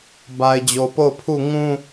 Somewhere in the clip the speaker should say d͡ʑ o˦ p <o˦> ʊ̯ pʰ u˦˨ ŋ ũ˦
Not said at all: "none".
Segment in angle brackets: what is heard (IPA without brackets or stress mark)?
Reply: o˦˨